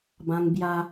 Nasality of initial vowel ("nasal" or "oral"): nasal